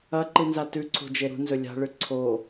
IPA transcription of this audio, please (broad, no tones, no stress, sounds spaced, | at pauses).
ɐ ǃ ɨ n z a t ʉ ǀʰ o̤ d͡ʒ e ɾ ṳ n z ɵ lʲ a̤ ɭ ɨ ǀʰ o